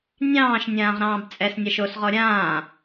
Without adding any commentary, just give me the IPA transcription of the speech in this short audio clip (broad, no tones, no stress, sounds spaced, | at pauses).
nʲ ɑ̃ː ʃ nʲ ãː ʁ ɾ ɑ̃ː b t͡sʼ ɛ s nʲ a ʃ o s ʁ ɔ ɾʲ ãː